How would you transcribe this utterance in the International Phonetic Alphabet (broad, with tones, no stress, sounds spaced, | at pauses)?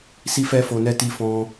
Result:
s i˦ f ɛ˦ f o˧ n ɛ˦ t i˦ f ɔ̃˦